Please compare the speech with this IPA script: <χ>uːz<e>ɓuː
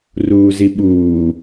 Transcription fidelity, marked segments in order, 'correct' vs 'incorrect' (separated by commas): incorrect, incorrect